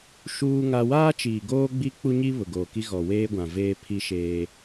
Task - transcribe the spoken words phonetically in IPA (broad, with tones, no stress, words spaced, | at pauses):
ʃuː˦ŋa˦ waː˦ t͡ʃiː˨ɡoː˦ɡ͡bi˦ k͡pu˦ɲi˦ βʊ˨ɡoː˨ki˦ ɣɔ˨weː˦ɡʷã˨ veː˦ pʰi˦ʃeː˦